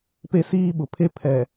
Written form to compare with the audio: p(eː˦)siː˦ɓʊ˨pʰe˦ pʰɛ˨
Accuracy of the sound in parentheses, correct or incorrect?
incorrect